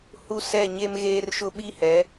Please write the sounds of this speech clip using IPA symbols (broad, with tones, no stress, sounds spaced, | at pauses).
h u˦ s ɛ˦˨ ɲ e˦ m ɣ eː˦ r ʃ ʊ˦ ɓ i˦ h ɛ˨˦